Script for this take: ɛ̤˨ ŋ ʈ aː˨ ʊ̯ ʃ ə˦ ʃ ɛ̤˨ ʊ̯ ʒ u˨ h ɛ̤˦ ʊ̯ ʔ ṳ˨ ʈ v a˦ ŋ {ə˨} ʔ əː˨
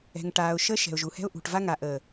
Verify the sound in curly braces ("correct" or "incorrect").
incorrect